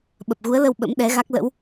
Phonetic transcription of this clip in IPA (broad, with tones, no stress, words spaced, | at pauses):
ɓə˨˩p̚ɣu˨˦ə̯lə˧w ɓə̰˧˥mɗɛ˨˦ɣa˦˥k̚ lə̰˧˥w